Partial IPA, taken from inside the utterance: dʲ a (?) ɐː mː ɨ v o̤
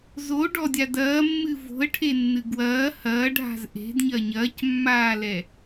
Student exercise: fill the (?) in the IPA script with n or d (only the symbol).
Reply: d